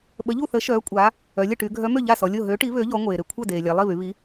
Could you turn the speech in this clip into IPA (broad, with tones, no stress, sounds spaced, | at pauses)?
ɓ ə˨˥ ʎ u˥˩ θ ə˨˥ ʃ œː˨˥ kʷʼ aː˨˥ | œ˩˧ lʲ ə˥˩ ʈ y˩˧ ɡʱ œ˨˥ m ø˥˩ ʎ a˥˩ s ɔ˩˧ lʲ o˥˩ ɦ ø˨˥ ʈ i˨˥ β ø˨˥ ʎ ɔ˨˥ ŋʷ eː˩ ɾ e˩ kʷʰ œ˥˩ d eː˩ lʲ a˩˧ lˠ i˥˩ β y˩˧ β i˨˥